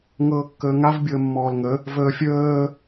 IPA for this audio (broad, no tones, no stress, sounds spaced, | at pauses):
ŋ ɤː kː əː ŋ a v bʲ ɤ ə̯ mː ɔː l ŋ ə | v əː fʲ əː